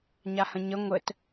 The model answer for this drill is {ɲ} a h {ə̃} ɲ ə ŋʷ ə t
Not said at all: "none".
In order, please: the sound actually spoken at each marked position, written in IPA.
ɲ, ə̃

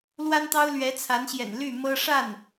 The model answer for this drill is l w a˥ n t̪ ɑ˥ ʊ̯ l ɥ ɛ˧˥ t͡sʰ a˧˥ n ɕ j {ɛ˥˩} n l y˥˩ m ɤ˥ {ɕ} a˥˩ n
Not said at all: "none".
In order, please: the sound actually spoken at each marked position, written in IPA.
ɛ̰˨˩, ʂ

